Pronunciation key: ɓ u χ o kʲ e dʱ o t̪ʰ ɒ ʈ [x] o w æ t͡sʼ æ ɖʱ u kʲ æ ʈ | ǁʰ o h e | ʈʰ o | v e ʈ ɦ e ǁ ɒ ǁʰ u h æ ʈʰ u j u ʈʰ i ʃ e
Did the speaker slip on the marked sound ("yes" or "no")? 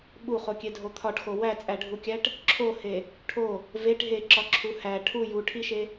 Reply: no